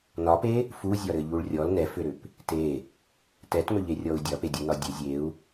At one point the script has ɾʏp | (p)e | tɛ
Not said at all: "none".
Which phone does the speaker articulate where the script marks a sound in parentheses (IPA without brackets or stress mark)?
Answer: t